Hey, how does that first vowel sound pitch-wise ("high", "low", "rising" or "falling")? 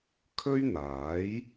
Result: high